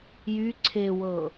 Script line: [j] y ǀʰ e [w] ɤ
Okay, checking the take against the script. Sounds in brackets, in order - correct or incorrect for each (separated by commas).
correct, correct